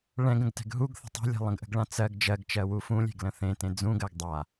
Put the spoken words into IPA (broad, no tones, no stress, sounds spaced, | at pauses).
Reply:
ɭ ɛ̃ ɡ ə̃ ɡ t ɛ̤ ɡ ɦ u ɡ θ ə̤ tˤ e̤ lʲ ɛ̤ lˠ ə̃ ɡ ʔ ə̤ ɡ ɭ ã t͡s ɜ ɡ d͡ʒ ɜ ɡ t͡ʃ ɜ w u f ũ lʲ e̤ ɡ l ə̃ θ ẽ t ẽ d͡z ũ ɡ ɜ ɡ dˤ a